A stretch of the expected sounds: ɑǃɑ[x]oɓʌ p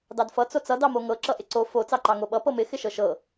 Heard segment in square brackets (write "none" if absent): ŋ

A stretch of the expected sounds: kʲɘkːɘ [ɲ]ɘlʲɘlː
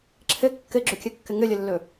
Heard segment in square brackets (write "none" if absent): ŋ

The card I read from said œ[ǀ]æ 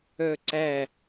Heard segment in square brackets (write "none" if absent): ǀ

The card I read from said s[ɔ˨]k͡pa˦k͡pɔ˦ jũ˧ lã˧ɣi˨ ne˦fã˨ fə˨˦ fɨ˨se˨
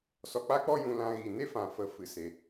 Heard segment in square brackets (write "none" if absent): ɔ˨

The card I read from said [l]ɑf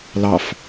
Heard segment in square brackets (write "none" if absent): l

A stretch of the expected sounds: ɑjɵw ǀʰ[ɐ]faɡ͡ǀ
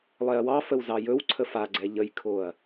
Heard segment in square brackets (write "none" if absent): ə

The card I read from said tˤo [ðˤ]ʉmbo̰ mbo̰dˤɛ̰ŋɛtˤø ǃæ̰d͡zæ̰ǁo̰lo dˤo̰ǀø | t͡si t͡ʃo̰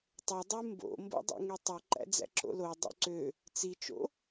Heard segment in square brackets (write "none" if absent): dˤ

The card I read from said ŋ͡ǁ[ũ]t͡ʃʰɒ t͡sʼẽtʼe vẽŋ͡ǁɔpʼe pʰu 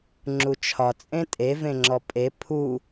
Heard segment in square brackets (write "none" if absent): u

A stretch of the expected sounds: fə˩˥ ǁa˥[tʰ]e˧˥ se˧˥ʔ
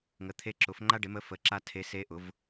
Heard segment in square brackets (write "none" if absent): tʰ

